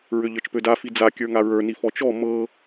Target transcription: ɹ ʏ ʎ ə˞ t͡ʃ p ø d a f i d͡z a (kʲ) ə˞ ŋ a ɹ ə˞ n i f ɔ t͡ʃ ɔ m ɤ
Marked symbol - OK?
yes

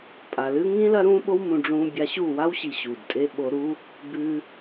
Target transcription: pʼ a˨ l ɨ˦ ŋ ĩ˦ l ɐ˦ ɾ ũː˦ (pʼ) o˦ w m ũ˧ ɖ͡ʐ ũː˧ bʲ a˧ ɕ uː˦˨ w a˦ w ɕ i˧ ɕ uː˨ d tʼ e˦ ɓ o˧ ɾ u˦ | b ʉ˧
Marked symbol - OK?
no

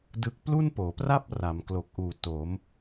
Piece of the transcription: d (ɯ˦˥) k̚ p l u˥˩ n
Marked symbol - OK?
yes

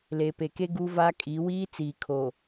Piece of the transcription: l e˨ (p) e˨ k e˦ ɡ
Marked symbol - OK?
yes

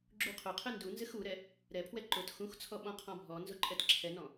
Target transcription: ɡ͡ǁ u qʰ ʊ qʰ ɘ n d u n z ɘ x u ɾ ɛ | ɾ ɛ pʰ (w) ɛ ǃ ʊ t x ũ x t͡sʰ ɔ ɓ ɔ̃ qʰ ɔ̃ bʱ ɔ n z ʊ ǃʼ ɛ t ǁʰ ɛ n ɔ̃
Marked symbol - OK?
yes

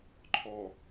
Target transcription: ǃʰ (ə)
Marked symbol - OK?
no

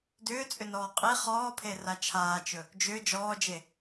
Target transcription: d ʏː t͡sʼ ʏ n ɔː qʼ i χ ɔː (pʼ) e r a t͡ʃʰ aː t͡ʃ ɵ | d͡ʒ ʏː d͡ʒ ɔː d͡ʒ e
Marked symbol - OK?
no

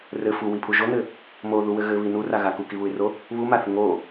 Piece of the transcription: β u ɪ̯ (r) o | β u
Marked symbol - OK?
yes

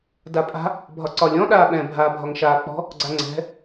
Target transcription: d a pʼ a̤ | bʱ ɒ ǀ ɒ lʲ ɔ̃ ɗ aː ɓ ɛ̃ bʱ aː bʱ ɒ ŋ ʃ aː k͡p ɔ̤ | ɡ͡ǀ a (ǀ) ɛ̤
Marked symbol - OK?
no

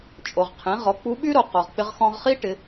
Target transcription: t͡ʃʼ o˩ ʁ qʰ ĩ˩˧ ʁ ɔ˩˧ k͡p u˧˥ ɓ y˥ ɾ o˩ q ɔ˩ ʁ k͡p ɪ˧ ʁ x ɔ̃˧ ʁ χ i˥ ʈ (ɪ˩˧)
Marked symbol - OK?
yes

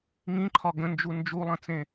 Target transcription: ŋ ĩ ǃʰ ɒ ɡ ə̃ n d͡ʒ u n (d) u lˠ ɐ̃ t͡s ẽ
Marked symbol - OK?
no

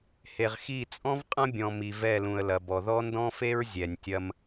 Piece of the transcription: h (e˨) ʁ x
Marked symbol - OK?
yes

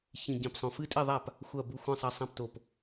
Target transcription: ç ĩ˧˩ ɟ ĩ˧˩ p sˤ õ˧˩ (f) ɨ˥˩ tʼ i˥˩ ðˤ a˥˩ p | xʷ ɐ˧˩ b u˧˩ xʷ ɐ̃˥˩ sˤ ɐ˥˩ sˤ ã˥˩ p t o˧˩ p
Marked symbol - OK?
yes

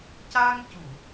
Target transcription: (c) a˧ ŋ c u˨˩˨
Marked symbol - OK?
yes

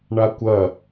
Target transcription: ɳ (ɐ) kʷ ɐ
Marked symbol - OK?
no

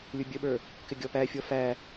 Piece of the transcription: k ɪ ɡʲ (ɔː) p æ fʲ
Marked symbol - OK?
no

